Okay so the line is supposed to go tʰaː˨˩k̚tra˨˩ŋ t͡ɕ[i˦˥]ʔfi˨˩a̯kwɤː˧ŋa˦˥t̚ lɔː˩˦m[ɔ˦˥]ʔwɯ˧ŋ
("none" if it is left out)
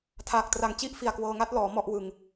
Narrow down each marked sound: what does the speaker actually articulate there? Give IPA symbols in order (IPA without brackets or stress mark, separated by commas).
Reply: i˥˩, ɔ˥˩